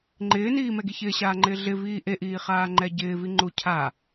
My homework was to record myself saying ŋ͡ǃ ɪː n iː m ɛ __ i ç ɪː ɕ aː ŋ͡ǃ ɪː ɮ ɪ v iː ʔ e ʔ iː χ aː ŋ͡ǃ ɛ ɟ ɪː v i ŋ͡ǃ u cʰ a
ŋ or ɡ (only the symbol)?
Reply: ɡ